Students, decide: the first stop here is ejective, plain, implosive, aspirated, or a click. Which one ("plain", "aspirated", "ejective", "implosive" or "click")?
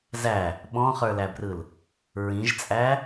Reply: implosive